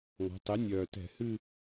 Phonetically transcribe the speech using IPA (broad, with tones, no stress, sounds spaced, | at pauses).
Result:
ŋ ɔ̤˩˧ tˤ e˩˥ nʲ œː˨˩ t ɛ̤˧˩˧ h ɨ˦˨